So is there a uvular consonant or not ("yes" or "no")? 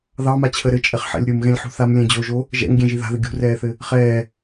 yes